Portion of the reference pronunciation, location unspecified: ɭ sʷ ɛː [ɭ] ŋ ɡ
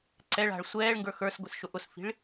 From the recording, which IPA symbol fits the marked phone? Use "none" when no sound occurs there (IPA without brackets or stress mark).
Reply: ɭ